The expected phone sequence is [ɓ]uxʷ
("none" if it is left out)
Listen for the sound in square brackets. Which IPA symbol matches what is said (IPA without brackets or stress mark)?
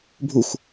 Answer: bʱ